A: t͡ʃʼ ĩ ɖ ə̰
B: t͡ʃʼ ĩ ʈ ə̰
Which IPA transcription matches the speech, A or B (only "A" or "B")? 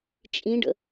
A